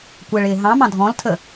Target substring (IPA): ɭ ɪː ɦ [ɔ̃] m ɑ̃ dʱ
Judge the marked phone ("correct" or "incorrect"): incorrect